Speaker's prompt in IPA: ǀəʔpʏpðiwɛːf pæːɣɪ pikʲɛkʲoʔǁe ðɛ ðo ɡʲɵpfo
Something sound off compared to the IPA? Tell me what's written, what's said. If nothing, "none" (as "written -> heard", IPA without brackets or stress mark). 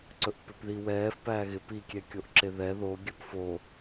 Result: ə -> ɵ